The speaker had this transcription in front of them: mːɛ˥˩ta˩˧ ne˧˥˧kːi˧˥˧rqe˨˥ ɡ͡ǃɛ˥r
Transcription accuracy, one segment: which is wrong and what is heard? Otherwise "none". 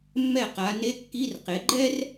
t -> q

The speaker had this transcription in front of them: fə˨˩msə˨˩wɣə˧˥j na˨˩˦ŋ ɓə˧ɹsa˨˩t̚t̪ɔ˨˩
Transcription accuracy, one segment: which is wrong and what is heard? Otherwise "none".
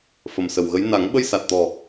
ɹ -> j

